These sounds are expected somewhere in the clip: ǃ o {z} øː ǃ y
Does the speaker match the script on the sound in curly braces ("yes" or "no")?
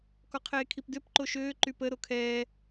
no